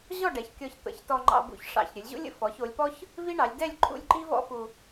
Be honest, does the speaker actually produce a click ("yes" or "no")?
yes